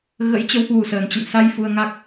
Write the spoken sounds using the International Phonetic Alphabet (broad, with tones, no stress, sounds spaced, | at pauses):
ɣ ə̰˧˥ j t͡ɕ ə˨˦ w h w u˨˩ s əː˨˩ n t͡ɕ ə̰˧˨ n s a˧ j f u˧ ə̯ ŋ a˦˥ k̚